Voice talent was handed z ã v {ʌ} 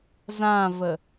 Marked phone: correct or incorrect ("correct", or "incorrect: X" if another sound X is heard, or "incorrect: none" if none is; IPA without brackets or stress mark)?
incorrect: ə